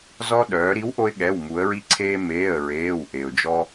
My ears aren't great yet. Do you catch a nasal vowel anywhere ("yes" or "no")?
no